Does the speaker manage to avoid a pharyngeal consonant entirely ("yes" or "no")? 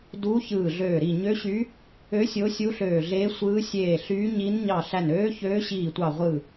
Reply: yes